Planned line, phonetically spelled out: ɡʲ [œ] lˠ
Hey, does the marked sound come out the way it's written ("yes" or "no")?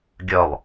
yes